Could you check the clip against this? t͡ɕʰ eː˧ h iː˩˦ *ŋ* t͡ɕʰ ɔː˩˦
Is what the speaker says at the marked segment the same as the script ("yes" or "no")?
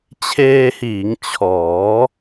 yes